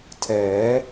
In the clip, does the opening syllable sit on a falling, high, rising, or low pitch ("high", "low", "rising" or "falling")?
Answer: rising